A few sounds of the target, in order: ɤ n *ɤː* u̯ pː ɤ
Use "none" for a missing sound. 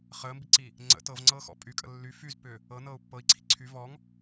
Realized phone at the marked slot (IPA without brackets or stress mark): ɤː